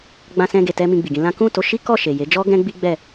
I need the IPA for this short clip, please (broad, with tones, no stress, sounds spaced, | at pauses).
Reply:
ɡ͡b ã˧ s ɛ̃˧ ɡ e˨ t ɛ˧ m ĩ˧ ɡ͡b i˨ ɡ ĩ˧ l ã˦ k ũ˦˨ t o˧ ʃ i˦ k ɔ˦˨ ʃ e˨ j e˨˦ d͡ʒ ɔ˦ ɡ ɛ̃˦ ɡ͡b i˦ ɡ͡b ɛ˦˨